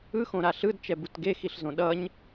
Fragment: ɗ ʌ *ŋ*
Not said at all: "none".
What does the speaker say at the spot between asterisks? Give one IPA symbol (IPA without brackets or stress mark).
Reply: ɲ